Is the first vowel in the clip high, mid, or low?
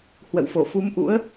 mid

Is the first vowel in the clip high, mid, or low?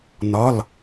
low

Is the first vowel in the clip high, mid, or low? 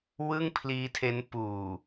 high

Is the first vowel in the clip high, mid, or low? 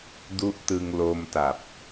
high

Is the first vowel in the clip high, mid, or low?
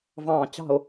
low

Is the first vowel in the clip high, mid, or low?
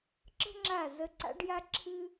mid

